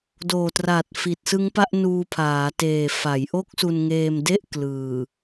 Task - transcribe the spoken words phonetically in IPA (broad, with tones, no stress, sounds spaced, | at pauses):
d oː˨˩ t r a˨˩ t̚ f i˨˩ t̚ s ɯ˦˥ ŋ p a˥˩ ʔ n uː˧ pʰ aː˩˦ t eː˨˩ f a˩˦ j ʔ o˦˥ k̚ s u˧ n ŋ eː˧ m d e˥˩ ʔ k l ɯː˨˩